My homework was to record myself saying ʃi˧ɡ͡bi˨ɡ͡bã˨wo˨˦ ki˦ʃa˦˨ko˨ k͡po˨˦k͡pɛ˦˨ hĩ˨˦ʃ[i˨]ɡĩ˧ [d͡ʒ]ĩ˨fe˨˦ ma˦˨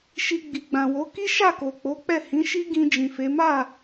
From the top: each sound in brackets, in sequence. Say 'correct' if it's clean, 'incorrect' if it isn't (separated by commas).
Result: incorrect, correct